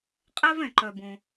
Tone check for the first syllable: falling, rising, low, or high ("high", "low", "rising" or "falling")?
high